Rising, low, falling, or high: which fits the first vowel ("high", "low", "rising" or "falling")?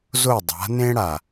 falling